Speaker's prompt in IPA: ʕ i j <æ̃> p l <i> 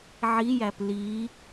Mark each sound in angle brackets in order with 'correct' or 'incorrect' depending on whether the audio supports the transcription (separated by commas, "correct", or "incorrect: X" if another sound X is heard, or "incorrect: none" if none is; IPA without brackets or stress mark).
incorrect: æ, correct